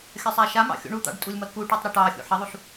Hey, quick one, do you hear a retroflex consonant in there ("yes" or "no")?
yes